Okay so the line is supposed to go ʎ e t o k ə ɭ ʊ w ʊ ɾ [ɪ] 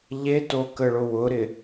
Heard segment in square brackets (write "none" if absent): ɪ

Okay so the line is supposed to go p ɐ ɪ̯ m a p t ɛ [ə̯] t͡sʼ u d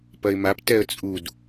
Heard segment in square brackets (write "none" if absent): ə̯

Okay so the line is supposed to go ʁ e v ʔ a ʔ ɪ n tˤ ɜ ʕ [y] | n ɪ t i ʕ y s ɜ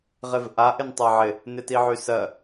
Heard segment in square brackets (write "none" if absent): ɪ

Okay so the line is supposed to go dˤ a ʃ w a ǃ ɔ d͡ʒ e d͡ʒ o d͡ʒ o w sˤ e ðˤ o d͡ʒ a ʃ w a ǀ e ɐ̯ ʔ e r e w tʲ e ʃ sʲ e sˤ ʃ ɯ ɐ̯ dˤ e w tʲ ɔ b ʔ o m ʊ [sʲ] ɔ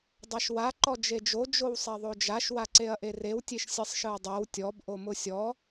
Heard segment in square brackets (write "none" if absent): sʲ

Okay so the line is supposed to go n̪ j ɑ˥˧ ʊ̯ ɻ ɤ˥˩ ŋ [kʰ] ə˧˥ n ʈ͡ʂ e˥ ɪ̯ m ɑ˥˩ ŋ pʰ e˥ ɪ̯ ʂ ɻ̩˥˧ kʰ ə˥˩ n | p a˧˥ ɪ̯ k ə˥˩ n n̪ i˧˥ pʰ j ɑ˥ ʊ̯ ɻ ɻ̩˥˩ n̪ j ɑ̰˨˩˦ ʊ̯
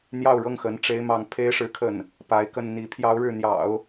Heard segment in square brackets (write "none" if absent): x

